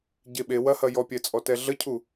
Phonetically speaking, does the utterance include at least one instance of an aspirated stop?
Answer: yes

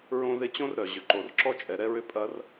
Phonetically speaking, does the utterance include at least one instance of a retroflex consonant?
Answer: no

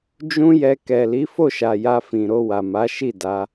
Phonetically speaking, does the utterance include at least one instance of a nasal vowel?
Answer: yes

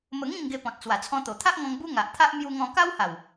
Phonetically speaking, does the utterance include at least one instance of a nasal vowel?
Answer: yes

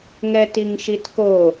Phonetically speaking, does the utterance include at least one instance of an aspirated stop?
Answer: no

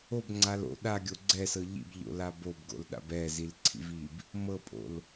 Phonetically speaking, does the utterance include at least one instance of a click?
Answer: yes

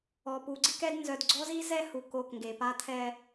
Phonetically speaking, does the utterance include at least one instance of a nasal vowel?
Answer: no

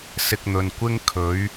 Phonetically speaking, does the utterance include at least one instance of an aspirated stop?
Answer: yes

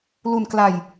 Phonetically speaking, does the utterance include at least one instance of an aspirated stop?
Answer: no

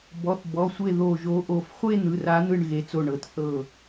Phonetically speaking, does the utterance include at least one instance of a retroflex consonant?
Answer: yes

